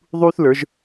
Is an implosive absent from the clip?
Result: yes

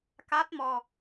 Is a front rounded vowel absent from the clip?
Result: yes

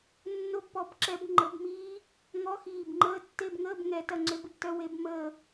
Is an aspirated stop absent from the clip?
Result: yes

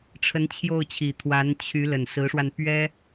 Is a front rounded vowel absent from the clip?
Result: no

